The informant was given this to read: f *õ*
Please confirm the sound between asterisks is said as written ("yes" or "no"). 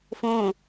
yes